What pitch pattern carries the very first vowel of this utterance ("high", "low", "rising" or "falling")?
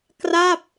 falling